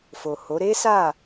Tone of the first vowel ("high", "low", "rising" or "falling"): low